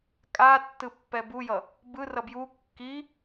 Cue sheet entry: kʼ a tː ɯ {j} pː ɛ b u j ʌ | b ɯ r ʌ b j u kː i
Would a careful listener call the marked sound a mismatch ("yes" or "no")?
yes